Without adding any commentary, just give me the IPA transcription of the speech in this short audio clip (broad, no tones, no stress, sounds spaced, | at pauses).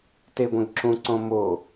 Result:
t e ɡʷ ɛ̃ ɡ ǁ ũ ǀ õ m o